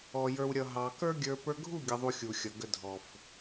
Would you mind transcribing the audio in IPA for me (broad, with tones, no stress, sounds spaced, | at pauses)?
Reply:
ɔ˨ j ə˞˨ w ɾʲ ʌ˨ ɦ ɑ˨ k ə˞˦ ɡʲ ə˞˧ p ə˞˧ ɡʱ u˦˨ ɡʲ ə˨ ðˤ u˨ xʲ u˨ xʲ ʌ˨ ɡ ə˨ dʱ ɔ˨ f